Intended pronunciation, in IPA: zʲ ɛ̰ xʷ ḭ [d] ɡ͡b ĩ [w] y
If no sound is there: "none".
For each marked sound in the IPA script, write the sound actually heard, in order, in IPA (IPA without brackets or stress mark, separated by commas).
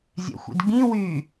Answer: d, w